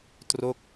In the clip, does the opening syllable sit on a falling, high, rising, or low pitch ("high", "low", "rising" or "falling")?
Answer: falling